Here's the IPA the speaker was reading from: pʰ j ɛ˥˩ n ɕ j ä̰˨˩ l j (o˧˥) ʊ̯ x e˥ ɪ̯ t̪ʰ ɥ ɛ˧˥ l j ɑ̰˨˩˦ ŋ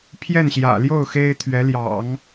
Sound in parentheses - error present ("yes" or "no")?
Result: yes